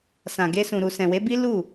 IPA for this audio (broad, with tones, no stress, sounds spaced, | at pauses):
s ã˨ ɡ e˧ s ũ˨ ɾ u˨ s ɛ̃˨ w e˨˦ b i˦ l u˦˨